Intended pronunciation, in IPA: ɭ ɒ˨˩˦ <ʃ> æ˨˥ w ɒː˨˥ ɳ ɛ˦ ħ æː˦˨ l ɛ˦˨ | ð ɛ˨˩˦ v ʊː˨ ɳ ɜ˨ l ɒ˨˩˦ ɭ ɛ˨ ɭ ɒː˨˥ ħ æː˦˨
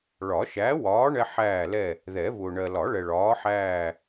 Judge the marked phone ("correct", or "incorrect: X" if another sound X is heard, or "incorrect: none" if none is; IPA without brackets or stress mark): correct